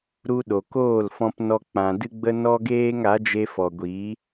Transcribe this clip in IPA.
ɾu˧ɗo˨ koː˦˨lfɔ̃˧pnɔ˧ k͡pã˨dɨ˧ɡ͡bə˧ nɔ˧ɡeː˧ŋ a˨˦d͡ʒe˧fɔ˨ɡʷiː˨˦

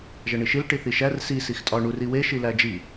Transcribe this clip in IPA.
ʒæɳiʃil ʈiθiʃær si sixtʼɒ ɳu riwe ʃilæd͡ʒi

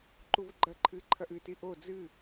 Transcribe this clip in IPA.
ǃuvɡ͡ǃɐǃʰɨǃʰɐʔ ɨti ʔo d͡zɨ

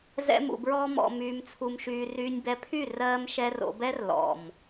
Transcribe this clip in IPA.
zɛ̰˦mṵ˧bɹɔː˦mɔ̰˧ myː˧mt͡sʰu˧mʃyː˧ ryː˧nʲbɛ˧pʰy˦˨ rɜː˧mʃɛ˧ ro̰˧bɛ˦r lɔ̰˨m

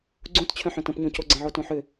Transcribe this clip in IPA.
ɡ͡ǀũtt͡ɕʰœ̃ħœ̃t ə̃pɲõcoɡ͡ǀə̃ ʕotõħʏ

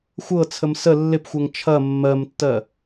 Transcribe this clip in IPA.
xʷɤt͡sʰəm sə lːɪpxʷɜŋ t͡ʃʰɐ mːɜmtːɜ

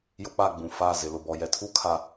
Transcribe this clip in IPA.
jo˦k͡pa˦˨ ɡ͡bũ˨fa˦˨ zɪ˨lʊ˨bɔ˨ jɛ˨tʰu˦kʰa˨

